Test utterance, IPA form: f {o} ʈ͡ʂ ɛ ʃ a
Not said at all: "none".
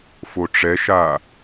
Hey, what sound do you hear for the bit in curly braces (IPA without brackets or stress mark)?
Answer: o